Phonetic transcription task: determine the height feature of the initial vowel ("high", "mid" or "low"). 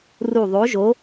high